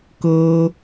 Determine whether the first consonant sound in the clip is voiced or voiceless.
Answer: voiceless